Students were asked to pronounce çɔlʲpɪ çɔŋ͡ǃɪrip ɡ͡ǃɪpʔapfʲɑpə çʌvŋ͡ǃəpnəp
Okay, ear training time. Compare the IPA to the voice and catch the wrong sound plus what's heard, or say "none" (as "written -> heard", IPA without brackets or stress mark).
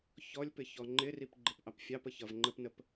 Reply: a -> ɑ